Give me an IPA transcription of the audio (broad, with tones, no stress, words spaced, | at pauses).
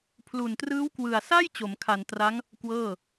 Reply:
pʰlu˨˩ntrɯː˦˥wkwɯ˨˩a̯ sa˥˩j t͡ɕo˩˦mkʰa˨˩ntra˦˥ŋ | kwɤː˥˩